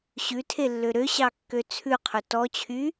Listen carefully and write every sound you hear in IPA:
ɕ ʉ tʰ e lː ø ɾ ø ɕ ɑ kː ø t͡sʰ ʉ qʰ ɵ t ɔ t͡ɕʰ y

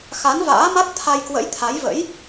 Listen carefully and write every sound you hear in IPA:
x a˨˦ n v a̰ː˧˥ m a˦˥ t̚ t̪ʰ a˧ j k w ə̰˧˥ j t̪ʰ a˨˦ j v ə̰˧˥ j

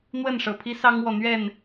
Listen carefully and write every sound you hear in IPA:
n̪ w ə˥˨ n ʂ ɤ˨˩ pʰ i˦ s ɑ˦ ŋ w ɔ˨ n̪ ɥ ɛ˥˨ n

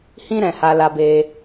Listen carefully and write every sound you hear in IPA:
h ĩ˦ ɾ ɛ̃˧ h a˧ l a˧ b e˧

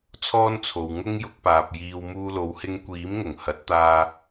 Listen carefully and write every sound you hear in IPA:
t͡sʰ ɔː˥ n t͡sʰ o˨ w ŋ ʊ˥ ŋ j ʊ˧ k̚ p aː˨ p̚ j iː˧ w m uː˧ l o˨˧ w h ɪ˧ ŋ kʷ iː˨˥ m ŋ ʊ˨˩ ŋ h ɐ˨˥ t̚ t̪ aː˧

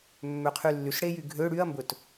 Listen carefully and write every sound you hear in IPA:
mː ø qʰ y lː y s ɽ e j y ɡʱ ø ɽ y ɐ̯ m b ɵ t

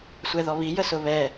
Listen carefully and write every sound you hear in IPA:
sʷ ɛ ð ɔ β i j ə s ʊ β ɛ

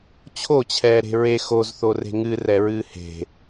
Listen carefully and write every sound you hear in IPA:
t͡ɕʰ o t͡ɕʰ ɛː ɾ e̤ ɹ e x o z θ o r e̤ ŋ ɨ r ɛ ɹ ɨː h e̤

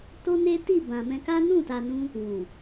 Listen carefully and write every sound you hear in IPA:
t o˦ n e˦ t i˦˨ b ã˨ m ɛ̃˧ k a˦ n ũ˦˨ t a˨ n ũ˧ | w ũ˨

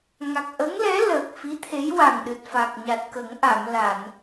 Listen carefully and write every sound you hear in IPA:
ŋ a˨˩ k̚ ʔ ə˧˥ ŋ l ɛ˧˥ l əː˨˩ k̚ f i˧˥ t̪ʰ e˧˥ j w a˨˩ ŋ ɗ ɨ˨˩ t̚ f a˨˩ k̚ ɲ a˨˩ t̚ k ə˨˩˦ ŋ ʔ a˨˩˨ m l a˨˩˨ n

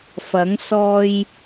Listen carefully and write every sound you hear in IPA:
f ɐ˨˥ ŋ s ɔː˧ j

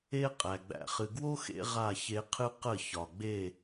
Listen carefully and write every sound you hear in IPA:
e˦ qʼ æ˨ ɡ͡b æ̰˨ χ ɨ˨ ɡ w o˦ x ḛ˦ ʁ a˦˨ ç e˧ qʰ ɨ˦ q ə˦˨ ç ɒ˨ ɡ͡b e˦˨

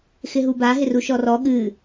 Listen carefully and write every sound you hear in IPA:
x ɪ ɦ u b a ɦ ɪ r u ʃ ɔ r ɔ ɠ ɨ

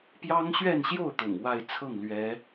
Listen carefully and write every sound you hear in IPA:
p j ɑ˥ ŋ ɕ ɥ ɛ˥˧ n ɕ j o˥˩ ʊ̯ t̪ ʊ̰˨˩ ŋ w a˥˧ ɪ̯ t͡sʰ ɤ˥˩ ŋ l ɥ ɛ˧˥

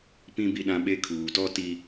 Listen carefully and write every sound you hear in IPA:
p ĩ˦ b i˦ ɗ ã˦ ɓ e˦ kʰ uː˨ t ɔ˦ t i˦

